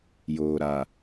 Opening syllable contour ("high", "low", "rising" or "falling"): low